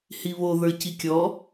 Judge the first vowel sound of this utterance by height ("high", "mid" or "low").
high